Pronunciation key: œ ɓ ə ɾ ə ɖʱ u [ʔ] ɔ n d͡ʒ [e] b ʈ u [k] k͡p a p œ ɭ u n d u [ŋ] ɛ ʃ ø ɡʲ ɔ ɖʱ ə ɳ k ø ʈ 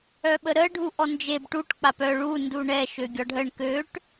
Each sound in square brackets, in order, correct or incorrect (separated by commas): correct, correct, incorrect, incorrect